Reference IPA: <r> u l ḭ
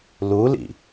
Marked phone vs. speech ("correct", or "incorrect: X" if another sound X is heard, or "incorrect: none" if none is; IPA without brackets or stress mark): incorrect: l